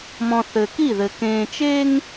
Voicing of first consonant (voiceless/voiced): voiced